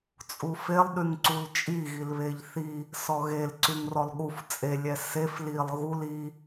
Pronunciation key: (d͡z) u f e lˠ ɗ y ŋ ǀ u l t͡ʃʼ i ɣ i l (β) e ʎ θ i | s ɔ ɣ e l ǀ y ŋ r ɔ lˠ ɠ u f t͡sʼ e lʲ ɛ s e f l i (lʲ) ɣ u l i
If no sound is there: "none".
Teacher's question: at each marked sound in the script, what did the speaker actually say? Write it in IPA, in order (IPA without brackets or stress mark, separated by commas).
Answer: t͡sʼ, β, lˠ